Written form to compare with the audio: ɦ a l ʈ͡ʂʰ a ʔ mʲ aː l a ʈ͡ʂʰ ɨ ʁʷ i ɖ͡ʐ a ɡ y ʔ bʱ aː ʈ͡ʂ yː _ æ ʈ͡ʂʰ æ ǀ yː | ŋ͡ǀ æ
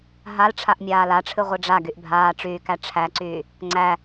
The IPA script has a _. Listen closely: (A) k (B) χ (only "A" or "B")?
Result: A